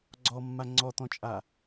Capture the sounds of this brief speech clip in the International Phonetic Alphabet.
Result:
ɡ͡ǀ ɔ mː a ŋ͡ǀ ɔ t̪ ɔ̃ t͡ʃʼ a

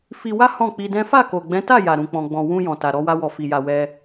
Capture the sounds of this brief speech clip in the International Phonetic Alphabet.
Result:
f i˧ w a˦ h ɔ̃˦˨ k͡p i˧ d ɛ̃˦ f a˦˨ k o˨ ɡ͡b ɛ̃˨˦ t a˦˨ j a˨ ɾ ũ˨ k͡p ɔ̃˨ ɡ͡b ɔ̃˨ w ũ˧ j ɔ̃˨ t a˨ ɾ ɔ˧ w a˧ w ɔ˨ f i˨ j a˨ w ɛ˧

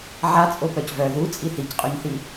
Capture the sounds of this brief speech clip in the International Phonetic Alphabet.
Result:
ʕ a t͡sʼ o p œ c v œ ð u t͡sʼ i θ i c qʼ u ɲ θ i

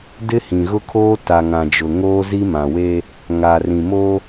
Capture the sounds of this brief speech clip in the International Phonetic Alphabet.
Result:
d ɪ˦ h ĩ˨ ɣ ʊ˦ kʰ oː˦ t a˨ ŋ ã˨ d͡ʒ ʊ˨ ŋ oː˦ z i˦ m ã˨ w e˦ | ŋ a˨ r ĩ˨ m o˦

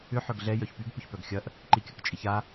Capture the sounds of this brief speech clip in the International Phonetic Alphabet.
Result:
ʏ ħ œ ɡ ɮ ɛ j œ ç p y ɡ p ʏ ç p œ ɡ xʲ ɐ ʔ | ǃ i kʲ ɐ k t͡ʃʼ i ç a

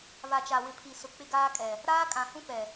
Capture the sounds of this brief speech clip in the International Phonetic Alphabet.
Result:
β a˨ t͡ʃ a˨ w ɪ˨ pʰ i˨ s ʊ˨ k͡p ɪ˦ ɡ aː˦ kʼ ɛ˨ | ɾ aː˦ kʼ ã˨ h ũ˦ p ɛ˨

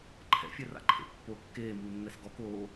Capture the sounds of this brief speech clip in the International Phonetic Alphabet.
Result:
ǃʰ ɛ̰ fʲ ɛ r a̰ ǃʰ ḛ pː o kː eː m uː nː ɛ s ɡ ɔ k oː

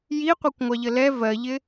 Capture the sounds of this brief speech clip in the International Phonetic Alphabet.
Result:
j i qʷ ɜ kʷ ŋʷ ɑ ʎ ə l ɛ v ɜ ʎ ɪ

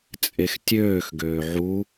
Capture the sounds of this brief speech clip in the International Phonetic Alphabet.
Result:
t͡sʼ e x tʲ øː x ɡ øː ʕ u

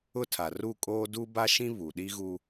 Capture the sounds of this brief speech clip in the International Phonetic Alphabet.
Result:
ʊ˦ tʰ a˨ r u˦˨ kʼ oː˦ d u˦ b a˦ ʃ ĩ˦ β u˨ ɗ i˦ ɣ u˦

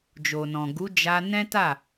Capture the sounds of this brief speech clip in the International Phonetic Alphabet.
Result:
d͡ʒ o˨ n ɔ̃˨ ɡ u˨˦ d͡ʒ a˧ n ɛ̃˦ t a˦˨

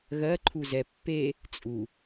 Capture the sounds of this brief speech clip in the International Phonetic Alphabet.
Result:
ɣ ɜ ǃʰ u z ɛ pː e | t͡sʼ u

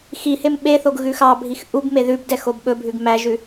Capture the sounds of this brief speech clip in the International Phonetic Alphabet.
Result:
x i h e m ɓ e θ o ɡ ɣ ʉ x ɑ bʱ i x ʔ u b m e ð ʉ b d ɛ x o b ɓ ɵ bʱ ʉ ɡ m æ ʒ ʉ

